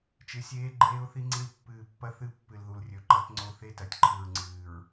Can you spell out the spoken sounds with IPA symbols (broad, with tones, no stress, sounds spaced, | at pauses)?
t͡ʃ ɨ˨ sʲ eː˦ ɡ͡ǃ eː˦ ʊ̯ θ i˦ ŋ͡ǀ i˦ l pː ɨː˨ pː ɐ˦ θ ɨ˦˨ pː ɨ˨ l ð u˨ l rʲ ɵ˨ ǃ ɐ˦ t ŋ͡ǀ o˦ θ e˦ t ɐ˨ tʲ ǃʰ ɨ˨ ɹ ŋ͡ǀ ɨː˨ ɹ